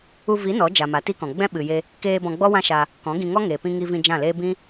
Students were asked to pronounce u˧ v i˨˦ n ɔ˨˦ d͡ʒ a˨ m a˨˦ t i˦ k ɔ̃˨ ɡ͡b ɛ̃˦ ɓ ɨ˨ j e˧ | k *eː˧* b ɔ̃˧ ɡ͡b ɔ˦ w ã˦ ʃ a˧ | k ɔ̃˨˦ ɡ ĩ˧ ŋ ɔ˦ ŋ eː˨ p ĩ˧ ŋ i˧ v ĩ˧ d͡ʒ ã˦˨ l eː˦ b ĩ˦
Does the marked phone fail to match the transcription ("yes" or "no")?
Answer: no